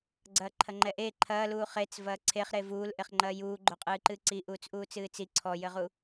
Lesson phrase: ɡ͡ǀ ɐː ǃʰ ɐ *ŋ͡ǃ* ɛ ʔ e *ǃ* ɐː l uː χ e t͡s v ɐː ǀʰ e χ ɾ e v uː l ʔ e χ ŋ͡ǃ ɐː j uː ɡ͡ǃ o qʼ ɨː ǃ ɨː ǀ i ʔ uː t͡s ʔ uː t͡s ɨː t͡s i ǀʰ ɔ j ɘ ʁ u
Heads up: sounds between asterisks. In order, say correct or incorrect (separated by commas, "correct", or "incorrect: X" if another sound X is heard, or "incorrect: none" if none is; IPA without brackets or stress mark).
correct, incorrect: ǃʰ